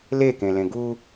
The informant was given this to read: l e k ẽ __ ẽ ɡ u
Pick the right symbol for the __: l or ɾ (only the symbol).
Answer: l